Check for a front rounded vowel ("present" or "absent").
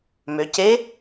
present